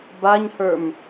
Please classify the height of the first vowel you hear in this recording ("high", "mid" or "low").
low